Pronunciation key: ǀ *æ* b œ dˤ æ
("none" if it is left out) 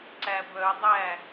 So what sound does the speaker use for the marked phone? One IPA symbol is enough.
æ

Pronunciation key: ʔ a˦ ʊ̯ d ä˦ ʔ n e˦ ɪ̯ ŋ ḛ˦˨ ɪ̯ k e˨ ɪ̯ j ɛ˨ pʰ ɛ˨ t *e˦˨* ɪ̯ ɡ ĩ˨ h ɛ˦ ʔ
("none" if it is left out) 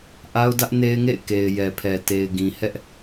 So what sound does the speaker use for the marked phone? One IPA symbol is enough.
e˨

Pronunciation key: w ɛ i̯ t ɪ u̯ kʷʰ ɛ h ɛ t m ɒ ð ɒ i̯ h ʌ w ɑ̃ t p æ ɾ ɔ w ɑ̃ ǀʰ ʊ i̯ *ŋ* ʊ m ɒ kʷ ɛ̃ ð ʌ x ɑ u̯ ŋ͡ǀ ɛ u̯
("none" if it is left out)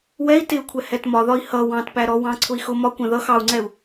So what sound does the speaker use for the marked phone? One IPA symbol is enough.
x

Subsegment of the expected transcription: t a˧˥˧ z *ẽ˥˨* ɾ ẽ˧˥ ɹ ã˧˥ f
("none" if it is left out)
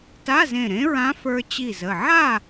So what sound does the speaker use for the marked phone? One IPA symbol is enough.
ẽ˧˩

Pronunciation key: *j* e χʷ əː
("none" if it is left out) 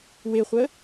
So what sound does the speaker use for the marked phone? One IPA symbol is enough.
w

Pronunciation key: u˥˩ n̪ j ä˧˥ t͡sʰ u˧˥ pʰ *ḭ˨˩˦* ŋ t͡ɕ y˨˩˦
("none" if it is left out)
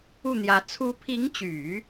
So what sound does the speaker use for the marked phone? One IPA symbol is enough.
i˧˥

